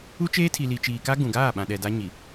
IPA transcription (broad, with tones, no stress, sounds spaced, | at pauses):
u˦ t͡ʃ eː˦ tʰ i˨ l i˨ t͡ʃ iː˨ k a˦ ɡ ũ˨ ɡ aː˦˨ ɓ ã˨ ɗ ɛ˨ d a˦ ɲ i˨